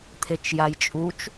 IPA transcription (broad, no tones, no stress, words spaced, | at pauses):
t̪ʰet͡ʃjajt͡ʃʼut͡ʃ